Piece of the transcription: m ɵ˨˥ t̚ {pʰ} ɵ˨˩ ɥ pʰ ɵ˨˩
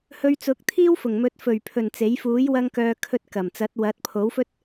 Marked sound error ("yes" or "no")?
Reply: yes